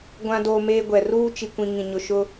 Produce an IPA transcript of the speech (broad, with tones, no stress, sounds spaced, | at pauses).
ɡʷ ã˦ d oː˦ m eː˦ ɡʷ ɛ˨ r uː˦ t͡ʃ i˨ kʷ ĩ˨ ŋ ĩ˨ ɲ ʊ˨ ʃ ʊ˦